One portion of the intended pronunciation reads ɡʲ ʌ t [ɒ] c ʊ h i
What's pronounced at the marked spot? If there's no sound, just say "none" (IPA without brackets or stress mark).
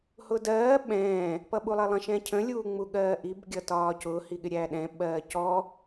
ɒː